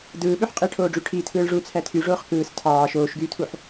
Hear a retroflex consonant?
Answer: yes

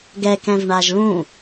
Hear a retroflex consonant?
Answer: yes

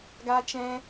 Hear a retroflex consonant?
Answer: no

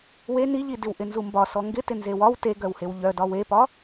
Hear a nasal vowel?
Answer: no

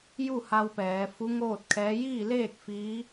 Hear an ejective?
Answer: no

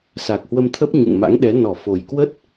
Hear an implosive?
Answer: yes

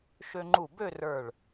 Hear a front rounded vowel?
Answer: yes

